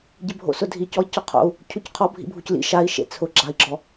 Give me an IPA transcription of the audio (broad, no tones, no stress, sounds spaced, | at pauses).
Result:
ɟ ɪ bʱ o̰ s ʊ dʱ i c ɔ i̯ c ɔ qʰ o̰ u̯ | cʰ u c qʰ ɔ bʱ ḭ bʱ u c l ḭ ʃ a i̯ ʃ ḛ t͡sʰ ʊ ɡ͡ǁ a i̯ ɡ͡ǁ ɔ